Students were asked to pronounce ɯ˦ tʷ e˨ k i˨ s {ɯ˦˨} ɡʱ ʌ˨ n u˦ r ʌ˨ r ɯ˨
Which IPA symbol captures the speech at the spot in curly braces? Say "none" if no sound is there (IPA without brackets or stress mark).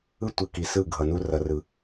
ɯ˦˨